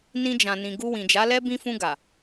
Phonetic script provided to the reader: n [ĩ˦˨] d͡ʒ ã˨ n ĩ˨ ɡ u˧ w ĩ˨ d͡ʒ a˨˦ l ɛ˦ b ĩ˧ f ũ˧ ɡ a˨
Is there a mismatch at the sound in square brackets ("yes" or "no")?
yes